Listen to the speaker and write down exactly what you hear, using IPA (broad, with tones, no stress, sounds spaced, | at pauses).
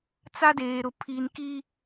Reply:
t͡s a˦ d eː˨ ɾ ʊ˨ pʰ i˨ n k i˦